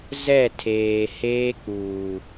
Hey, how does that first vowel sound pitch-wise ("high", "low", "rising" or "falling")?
falling